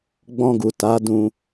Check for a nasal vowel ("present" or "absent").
present